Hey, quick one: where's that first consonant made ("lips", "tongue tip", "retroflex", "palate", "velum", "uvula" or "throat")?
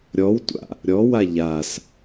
tongue tip